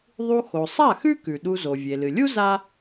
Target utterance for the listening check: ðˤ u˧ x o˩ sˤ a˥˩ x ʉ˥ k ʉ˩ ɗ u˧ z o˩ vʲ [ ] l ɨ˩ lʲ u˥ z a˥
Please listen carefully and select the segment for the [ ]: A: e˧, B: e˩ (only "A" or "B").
B